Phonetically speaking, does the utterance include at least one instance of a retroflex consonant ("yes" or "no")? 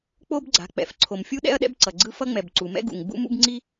no